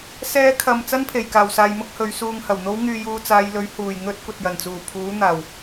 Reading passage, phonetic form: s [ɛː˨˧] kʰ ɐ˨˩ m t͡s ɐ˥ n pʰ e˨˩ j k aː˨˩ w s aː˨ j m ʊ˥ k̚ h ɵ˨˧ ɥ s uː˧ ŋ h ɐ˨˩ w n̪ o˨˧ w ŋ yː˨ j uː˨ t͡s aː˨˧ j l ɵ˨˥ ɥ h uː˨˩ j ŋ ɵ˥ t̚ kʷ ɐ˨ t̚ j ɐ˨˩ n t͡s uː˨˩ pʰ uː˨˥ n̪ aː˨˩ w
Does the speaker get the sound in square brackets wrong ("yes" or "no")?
no